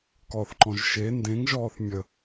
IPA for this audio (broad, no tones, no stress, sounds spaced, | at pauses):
k ɔ θ ǃ ɔ̃ ʒ ʃ e n d ẽ ŋ ʒ ɔː θ mʲ ə